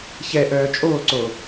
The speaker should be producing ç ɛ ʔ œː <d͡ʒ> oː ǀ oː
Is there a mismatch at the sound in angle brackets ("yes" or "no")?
yes